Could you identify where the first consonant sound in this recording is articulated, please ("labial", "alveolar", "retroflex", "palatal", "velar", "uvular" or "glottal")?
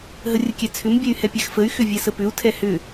glottal